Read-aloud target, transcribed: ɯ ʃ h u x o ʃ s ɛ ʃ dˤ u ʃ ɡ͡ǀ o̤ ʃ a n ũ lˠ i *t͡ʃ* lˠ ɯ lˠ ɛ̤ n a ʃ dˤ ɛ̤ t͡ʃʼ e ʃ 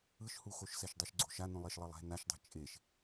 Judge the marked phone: incorrect: ʃ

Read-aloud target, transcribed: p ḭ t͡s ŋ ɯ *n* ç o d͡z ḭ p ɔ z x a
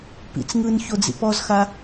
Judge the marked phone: correct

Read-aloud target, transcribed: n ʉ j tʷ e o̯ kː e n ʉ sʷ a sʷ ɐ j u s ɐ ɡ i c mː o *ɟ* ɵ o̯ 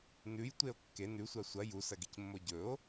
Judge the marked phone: correct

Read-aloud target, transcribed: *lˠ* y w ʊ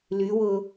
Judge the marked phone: incorrect: l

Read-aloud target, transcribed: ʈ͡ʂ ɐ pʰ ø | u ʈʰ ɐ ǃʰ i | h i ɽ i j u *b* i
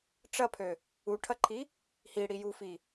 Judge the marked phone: incorrect: f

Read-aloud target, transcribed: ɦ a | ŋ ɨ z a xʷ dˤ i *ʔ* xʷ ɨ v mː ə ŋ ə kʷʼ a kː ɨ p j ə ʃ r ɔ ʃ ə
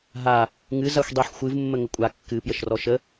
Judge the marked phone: incorrect: ħ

